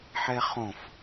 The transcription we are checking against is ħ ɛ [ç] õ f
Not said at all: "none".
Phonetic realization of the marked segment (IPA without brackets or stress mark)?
χ